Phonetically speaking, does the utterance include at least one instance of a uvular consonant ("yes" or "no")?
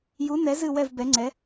no